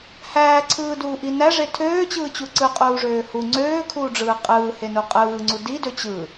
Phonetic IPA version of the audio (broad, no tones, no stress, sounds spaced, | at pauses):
h æː ǀʰ ɯː d uː ʔ i n æ ʐ e tʰ øː t͡ɕ ɯː t͡ɕ u ǀ ɯ qʼ uː ʐ øː h u ŋ͡ǀ øː kʰ uː ɖ͡ʐ ɯː qʼ ɯː h e n u qʼ ɯː ŋ͡ǀ u d i d ø t͡ɕ ɯ